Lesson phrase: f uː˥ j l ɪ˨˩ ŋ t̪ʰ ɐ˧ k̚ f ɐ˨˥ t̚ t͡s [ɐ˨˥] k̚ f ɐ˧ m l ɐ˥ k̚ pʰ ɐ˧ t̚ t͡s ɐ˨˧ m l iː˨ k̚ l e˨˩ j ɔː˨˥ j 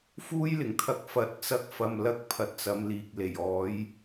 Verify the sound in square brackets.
incorrect: ɐ˥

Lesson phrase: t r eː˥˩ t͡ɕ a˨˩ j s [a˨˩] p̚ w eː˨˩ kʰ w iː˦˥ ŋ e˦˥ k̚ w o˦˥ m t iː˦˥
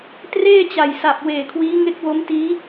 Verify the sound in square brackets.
correct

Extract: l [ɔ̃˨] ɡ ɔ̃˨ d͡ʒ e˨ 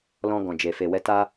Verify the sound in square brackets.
incorrect: ɔ̃˧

